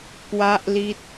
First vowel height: low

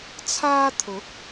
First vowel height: low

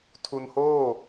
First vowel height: high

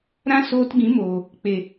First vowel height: low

